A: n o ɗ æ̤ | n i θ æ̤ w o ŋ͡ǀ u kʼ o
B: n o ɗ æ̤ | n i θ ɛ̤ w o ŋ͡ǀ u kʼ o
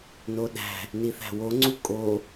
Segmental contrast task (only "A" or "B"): A